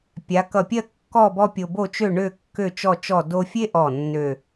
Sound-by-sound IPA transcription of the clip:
pʲ a˩˧ k ʌ˧˩ pʲ ɜ˥˧ kː ɔ˥˧ b ɔ˥ pʲ o˧ b o˥˧ t͡ʃ ø˥˧ ɳ ø˥˧ kː ø˥˧ t͡ʃ ɔ˥˧ t͡ʃ ɔ˥˧ d o˥ fʲ e˥ ʔ ɔ˧˩ nː ø˥˧

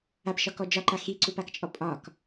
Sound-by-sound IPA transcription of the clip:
a p ʃ ɒ k ɔ d͡ʒ ɒ ǃ a x i ǀ u p a k t͡ʃʼ ɔ pʼ ɒ k

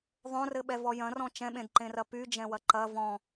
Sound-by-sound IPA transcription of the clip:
ðˤ õ r ɘ ɓ ɛ v ɔ j ɐ̃ r ɔ̃ t͡ʃ ɛ̃ ɓ ẽ d ǃ ẽ r ɐ p y d͡ʒ ɛ̃ w ɐ ǃ ɐ v ɔ̃

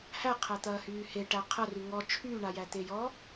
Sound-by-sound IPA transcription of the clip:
h æ qʰ æ t̪ ɐː h yː h e ʈ æ qʰ ɐ r y ŋ ɔ t͡ʃʰ yː ɳ a j æ t̪ e j ɔ

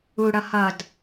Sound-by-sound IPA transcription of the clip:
u ɽ ʌ h ʌ d

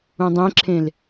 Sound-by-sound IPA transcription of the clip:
ũ dˤ ẽ ǁʰ ẽ l

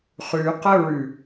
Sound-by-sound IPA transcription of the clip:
χ ʉ q ə ɹ ʉ

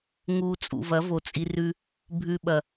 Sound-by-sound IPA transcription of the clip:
ŋ u˨ t͡sʼ ṵ˨ v ɐ˨˦ v o˨ t͡sʼ i˧ r ʉ˦ | bʱ ʉ˧ ɓ ɐ˨

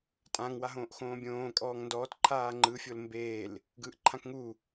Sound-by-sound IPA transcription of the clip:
tʼ ã ŋ w a ɦ õː ʔ x õː bʲ õː kʼ ɔː ŋ n d ɔː t ǃʰ aː ŋ͡ǃ ɯ fʲ o l m b eː l | ɡ ɯː ʔ ǃʰ ã k ŋ u

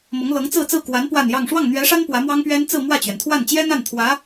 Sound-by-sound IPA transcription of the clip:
m ɤ˧˥ ŋ l ɤ˧˥ ŋ t͡s ɹ̩˥˧ t͡s ɹ̩˥˩ k w a˧˥ n p w a˥˧ n j ɑ˥˧ ŋ ʂ w ɑ˥˩ ŋ n̪ ɥ ɛ˧˥ ʂ a˥ n p w ä˧˥ m w ɑ˥ ŋ p ɥ ɛ˥ n t͡s ɹ̩˥˧ m w ä˥˩ t͡ɕ ɥ ɛ˩ n t̪ʰ w a˥˩ n t͡ɕ j ɛ˥ n̪ a˥˩ n t̪ʰ w ä˧˥

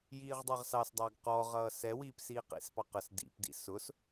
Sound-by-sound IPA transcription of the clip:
j iː ʁ dˤ ɛ ʁ s ɑ s dˤ ɑ ɡ q ɔ ʁ ʌː s ɛ w iː p s iː q ḭ s p ɑ q ə s d ḭ p d ḭ s ʊ s

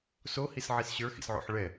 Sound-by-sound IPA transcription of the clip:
s o h i s ʕ i s ɕ ə˞ x ḭ s ʕ o̰ ħ ɭ ɛ

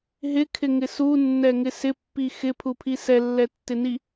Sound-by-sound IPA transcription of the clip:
ɦ ɪ kʰ ɪ ŋ ɪ s u nː ɛ ŋ ɪ s ɪ pː i x ɪ pʰ u pʰ i s ɛ lː ɛ tː ɪ n i

